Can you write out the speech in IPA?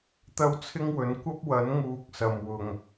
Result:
t̪ ɐ˥ w t͡sʰ ɪ˥ ŋ w ɵ˨˥ n kʷ ɐ˥ p̚ w ɐ˨˥ n ŋ uː˨ k̚ s ɐ˨˩ m w ʊ˨˩ ŋ

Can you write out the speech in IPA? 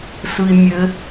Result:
s ɯ i̯ mʲ ɘ

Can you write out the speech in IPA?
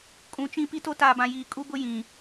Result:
kʼ ũ˨ t͡ʃ ĩ˦ p i˦ t o˦ t aː˨ b ã˨ j iː˨ kʼ u˦ b ʊ˦ j ĩ˨

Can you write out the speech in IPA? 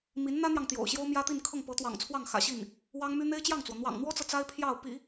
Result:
m i˧˥ n n̪ ä˥ n̪ j ɑ˨ ŋ t̪ j o̰˨˩ ʊ̯ ɕ j o˥ ʊ̯ m j ä˥ t̪ i˥˧ n kʰ ɤ˥˩ ŋ p ɤ˧˥ t̪ w ɑ̰˨˩ ŋ t͡sʰ w ɑ˥˩ ŋ x ä̰˨˩ ɕ i˥˩ n | w ɑ˥ ŋ m y˥ n̪ e˥ ɪ̯ t͡ɕ j ɑ˥˩ ŋ t͡s w ɔ˩ n̪ w ɑ̰˨˩ ŋ n̪ w ɔ˥ t͡s ɤ˨ t͡s a˥ ɪ̯ pʰ j ɑ˥˩ ʊ̯ p ḭ˨˩˦

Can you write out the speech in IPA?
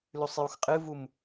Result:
l ʉ sˤ j u x qʼ ɨ v u m

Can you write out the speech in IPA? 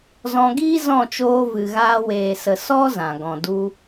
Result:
z ɔ̃˧ ɡ iː˦ z ɔ̃˦˨ t͡ʃ oː˧ v ɨ˨ ɣ aː˧ w eː˨ s ə˨ s ɔ˦ z ã˨ ɡ ɔ̃˨ d u˧

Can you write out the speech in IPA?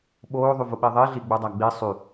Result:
ɓ oː ðˤ y v ʊ ɓ i ðˤ i ɮ i ɡ͡b u dˤ æ ɡ͡b i sˤ y

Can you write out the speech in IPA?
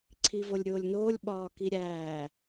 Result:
ǀʰ i v o lʲ ɾʲ oː lʲ n oː lʲ ɓ ɒː k i ɾʲ æː

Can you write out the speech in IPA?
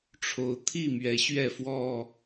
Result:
ʈ͡ʂʰ o˨˦ ʊ̯ t̪ʰ i˥˨ m ɥ ɛ˨˦ ɕ ɥ ɛ˥˨ f w ɔ˥˨

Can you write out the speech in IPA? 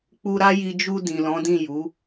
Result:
k͡p u˧ ɾ a˦ j i˧ d͡ʒ u˧ d ĩ˨ l ɔ̃˨˦ d ĩ˦˨ j u˨˦

